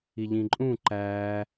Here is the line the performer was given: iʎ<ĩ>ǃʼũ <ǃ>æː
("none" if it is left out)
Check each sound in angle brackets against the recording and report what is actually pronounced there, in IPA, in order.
ĩ, ǃ

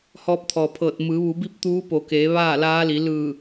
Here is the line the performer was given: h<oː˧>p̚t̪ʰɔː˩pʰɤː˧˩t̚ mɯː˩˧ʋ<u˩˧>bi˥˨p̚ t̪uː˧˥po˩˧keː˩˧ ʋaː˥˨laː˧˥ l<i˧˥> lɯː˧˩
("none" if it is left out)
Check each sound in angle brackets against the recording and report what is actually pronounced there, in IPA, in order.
ɔː˧, u˩˧, i˩˧

